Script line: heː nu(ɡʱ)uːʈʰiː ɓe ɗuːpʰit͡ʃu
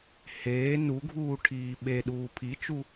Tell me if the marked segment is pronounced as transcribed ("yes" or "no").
yes